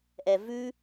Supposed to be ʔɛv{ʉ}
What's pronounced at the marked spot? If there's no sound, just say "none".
ʉ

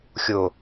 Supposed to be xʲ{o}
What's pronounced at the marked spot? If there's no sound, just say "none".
o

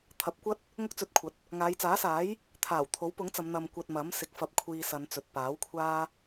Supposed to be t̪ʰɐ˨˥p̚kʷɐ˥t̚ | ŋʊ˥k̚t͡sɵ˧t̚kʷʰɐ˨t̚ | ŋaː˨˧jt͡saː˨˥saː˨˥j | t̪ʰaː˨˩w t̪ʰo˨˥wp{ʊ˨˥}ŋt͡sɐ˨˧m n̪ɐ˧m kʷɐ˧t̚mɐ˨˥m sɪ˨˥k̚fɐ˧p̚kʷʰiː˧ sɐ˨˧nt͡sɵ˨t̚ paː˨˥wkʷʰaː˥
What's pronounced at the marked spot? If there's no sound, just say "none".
ʊ˨˥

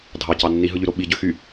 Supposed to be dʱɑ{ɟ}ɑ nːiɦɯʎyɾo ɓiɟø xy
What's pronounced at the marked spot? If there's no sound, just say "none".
c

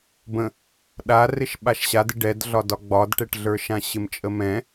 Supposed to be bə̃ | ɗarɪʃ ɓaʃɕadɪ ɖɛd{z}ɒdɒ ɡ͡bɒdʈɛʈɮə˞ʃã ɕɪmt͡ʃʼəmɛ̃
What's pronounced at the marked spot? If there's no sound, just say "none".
ɮ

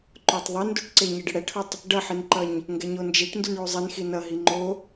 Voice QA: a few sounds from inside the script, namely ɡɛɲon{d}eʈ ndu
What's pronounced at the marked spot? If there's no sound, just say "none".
d͡ʒ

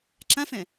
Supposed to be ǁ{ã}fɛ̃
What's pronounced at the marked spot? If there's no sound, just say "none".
ã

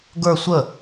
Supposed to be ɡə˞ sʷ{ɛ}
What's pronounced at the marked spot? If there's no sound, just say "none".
ə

